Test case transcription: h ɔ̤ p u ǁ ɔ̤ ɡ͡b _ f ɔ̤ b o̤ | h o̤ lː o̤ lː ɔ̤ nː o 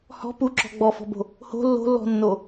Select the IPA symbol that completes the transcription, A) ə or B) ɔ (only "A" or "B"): B